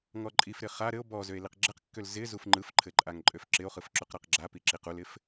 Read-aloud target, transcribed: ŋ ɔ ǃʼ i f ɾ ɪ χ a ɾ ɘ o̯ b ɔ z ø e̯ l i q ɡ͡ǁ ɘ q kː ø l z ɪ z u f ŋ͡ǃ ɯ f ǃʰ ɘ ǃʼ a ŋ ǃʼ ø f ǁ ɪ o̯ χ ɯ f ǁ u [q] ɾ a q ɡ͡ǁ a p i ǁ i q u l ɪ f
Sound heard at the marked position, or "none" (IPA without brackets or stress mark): q